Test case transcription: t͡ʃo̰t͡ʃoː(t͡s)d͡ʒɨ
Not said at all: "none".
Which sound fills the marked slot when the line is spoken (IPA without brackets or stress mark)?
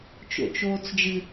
t͡s